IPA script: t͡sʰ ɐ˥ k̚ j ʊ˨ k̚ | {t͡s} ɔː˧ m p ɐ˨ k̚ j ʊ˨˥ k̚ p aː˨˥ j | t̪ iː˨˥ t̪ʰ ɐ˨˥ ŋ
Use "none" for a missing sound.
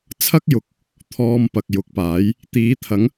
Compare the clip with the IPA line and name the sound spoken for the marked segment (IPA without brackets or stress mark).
t̪ʰ